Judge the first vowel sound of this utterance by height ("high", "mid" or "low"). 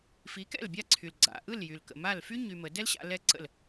high